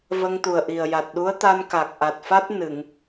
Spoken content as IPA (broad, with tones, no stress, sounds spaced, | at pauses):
v ə˧ ŋ t̪ u˨˩ ə̯ ʔ i˨˩ ə̯ j a˨˩ t̚ ɗ u˧˥ ə̯ t̪ a˧ n k a˨˩ k̚ ʔ a˨˩ t̚ f a˦˥ t̚ n ɨ˨˩˨ ŋ